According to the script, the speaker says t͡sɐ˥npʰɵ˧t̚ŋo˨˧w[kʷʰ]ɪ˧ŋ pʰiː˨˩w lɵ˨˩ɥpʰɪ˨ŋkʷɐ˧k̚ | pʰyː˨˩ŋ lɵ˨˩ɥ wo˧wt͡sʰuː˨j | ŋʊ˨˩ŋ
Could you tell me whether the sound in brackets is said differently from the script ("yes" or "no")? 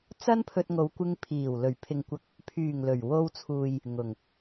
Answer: yes